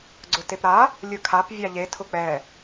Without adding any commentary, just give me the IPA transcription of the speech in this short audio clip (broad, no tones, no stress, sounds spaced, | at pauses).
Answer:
ɡ͡ǀ ʊ t e p ɾ a | lʲ ɯ kʰ a p vʲ a ʎ e tʰ ʊ k͡p ɛ